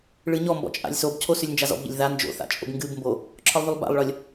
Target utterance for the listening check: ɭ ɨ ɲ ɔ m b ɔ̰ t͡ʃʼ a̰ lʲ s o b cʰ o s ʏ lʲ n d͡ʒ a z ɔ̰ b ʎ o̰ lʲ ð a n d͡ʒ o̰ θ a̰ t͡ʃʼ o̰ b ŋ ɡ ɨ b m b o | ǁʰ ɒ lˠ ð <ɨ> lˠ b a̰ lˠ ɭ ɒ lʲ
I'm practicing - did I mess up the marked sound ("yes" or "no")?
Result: yes